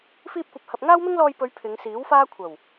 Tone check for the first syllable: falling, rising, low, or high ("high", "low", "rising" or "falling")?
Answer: high